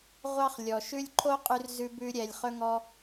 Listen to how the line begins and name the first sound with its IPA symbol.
ʁʷ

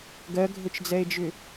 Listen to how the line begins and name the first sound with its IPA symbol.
ɡ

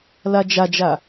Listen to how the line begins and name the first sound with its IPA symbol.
l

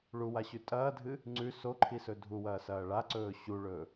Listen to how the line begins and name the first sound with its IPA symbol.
ɭ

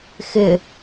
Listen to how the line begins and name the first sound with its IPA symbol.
x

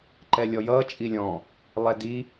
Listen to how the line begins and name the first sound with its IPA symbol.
ǃ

